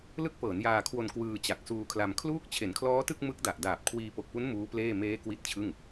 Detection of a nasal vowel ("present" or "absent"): absent